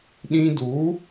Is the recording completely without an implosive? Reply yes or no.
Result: no